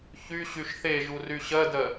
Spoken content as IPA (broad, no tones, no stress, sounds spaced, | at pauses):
ç y ɕ y ʃ θ e ʒ u r y ɕ ɜ d ɜ